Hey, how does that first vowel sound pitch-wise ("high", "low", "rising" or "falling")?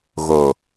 low